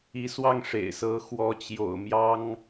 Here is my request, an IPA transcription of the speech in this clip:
i˧˥ s w ɑ˥˩ ŋ ʂ ḛ˨˩ ɪ̯ s ɤ˧˥ x w ɔ˧˥ t͡ɕ j o̰˨˩ ʊ̯ m j ɑ˥ ŋ

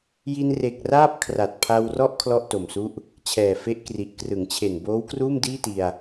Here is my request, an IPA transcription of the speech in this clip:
j i˧ n r e˨˩ k̚ r aː˥˩ p̚ kʰ r a˨˩ t̚ pʰ a˧ w r ɔ˥˩ ʔ kʰ l ɔ˥˩ ʔ t o˨˩ m s u˥˩ ʔ | t͡ɕʰ ɛː˨˩ f e˦˥ ʔ k r i˨˩ ʔ k r ɯ˩˦ ŋ t͡ɕʰ e˨˩ n b oː˦˥ w k r uː˥˩ m d iː˥˩ t i˧ a̯

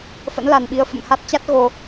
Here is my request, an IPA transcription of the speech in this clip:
f ə̰˧˥ n l a˨˩ n ɓ i˧ ə̯ f ə̰˧˨ m h a˦˥ t̚ t͡ɕ a˦˥ t̚ ɣ o˧

